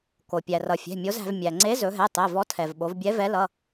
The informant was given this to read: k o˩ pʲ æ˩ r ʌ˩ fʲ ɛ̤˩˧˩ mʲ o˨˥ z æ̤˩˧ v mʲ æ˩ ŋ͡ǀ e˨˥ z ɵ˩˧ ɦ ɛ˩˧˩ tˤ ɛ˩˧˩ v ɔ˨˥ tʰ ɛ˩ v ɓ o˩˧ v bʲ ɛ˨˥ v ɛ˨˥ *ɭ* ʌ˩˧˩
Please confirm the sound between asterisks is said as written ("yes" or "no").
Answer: no